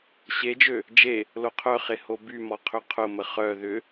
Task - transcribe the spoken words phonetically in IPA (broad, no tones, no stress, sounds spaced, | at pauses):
ɕ e d͡ʒ ø | d͡ʒ e | l o qʰ œ χ e h o b y m ɔ qʰ ʏ qʰ ʊ m ə χ œ ð ʏ